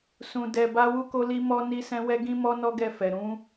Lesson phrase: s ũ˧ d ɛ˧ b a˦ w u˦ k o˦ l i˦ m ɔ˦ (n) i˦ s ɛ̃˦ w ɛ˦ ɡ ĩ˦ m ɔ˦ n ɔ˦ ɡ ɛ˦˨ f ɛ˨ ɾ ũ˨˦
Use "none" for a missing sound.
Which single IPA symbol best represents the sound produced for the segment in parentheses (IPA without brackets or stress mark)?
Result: n